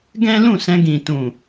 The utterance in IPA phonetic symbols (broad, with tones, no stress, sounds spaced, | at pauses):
ɡ ɛ̃˦ l ũ˦˨ s ɛ̃˧ ɡ ĩ˨ t ũ˨